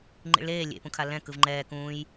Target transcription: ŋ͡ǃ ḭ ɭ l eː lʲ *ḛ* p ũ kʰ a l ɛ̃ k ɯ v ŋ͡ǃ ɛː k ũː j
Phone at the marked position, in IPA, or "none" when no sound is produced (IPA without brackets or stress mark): ḛ